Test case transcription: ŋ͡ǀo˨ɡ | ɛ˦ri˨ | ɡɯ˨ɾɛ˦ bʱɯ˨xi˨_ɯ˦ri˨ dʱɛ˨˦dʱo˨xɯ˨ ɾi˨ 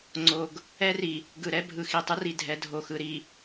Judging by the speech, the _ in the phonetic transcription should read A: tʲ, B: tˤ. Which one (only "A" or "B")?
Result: B